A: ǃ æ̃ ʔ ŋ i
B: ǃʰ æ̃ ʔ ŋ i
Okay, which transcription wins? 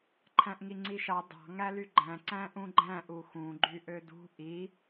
B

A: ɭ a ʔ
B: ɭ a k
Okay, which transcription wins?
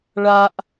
A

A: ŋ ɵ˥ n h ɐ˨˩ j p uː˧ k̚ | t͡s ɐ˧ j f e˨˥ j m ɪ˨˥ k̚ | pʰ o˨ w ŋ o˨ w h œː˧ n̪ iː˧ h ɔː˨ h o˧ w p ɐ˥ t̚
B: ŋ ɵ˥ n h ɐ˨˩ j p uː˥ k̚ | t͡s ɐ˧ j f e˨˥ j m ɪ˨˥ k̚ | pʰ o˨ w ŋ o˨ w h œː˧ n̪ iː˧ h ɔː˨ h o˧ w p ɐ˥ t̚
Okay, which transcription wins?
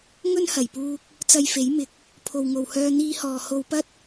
A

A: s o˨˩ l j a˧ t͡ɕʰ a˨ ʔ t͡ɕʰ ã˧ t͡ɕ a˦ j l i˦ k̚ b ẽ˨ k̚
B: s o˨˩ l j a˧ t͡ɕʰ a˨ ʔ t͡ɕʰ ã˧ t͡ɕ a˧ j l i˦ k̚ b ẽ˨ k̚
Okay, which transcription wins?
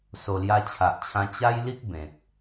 A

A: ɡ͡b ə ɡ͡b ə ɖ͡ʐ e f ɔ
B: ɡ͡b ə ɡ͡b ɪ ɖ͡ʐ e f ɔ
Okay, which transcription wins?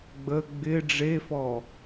B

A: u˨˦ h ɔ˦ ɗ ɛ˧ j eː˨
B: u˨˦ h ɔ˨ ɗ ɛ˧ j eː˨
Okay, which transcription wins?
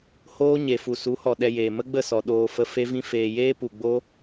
B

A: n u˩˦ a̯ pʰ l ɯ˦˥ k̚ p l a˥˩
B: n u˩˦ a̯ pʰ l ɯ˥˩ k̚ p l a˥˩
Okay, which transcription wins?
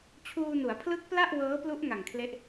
A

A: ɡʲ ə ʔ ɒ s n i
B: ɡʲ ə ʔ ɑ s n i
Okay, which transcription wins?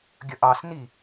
B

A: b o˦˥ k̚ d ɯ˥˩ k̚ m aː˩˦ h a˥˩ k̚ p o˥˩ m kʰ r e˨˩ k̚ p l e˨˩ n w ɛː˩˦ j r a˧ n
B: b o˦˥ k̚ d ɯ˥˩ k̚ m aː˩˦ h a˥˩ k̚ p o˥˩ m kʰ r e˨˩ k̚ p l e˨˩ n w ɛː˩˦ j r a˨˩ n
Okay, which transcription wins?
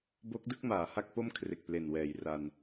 A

